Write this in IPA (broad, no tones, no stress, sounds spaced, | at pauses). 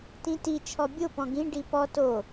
t ĩ t i t͡ʃʰ ɔ bʲ o p ɔ̃ ɡ ĩ ɖ i p ɔ t o